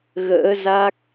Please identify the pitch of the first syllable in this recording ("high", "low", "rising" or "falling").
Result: rising